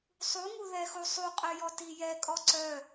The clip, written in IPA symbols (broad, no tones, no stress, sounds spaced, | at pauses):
sˤ u ŋ u ð ɛ x u sˤ u qʼ œ j ɔ t i j ɛ kʼ ɔ ǀ œ